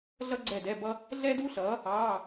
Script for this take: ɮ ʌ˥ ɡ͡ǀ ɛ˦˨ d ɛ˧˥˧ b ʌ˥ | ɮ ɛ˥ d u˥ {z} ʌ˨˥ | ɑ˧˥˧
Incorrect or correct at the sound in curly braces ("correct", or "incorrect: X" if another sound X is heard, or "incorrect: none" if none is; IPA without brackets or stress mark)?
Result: incorrect: ɬ